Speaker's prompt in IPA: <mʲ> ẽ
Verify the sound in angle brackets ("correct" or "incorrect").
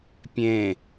incorrect